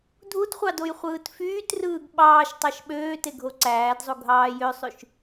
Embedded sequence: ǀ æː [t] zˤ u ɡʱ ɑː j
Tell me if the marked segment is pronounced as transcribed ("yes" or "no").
no